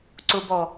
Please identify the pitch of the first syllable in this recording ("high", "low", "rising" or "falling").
low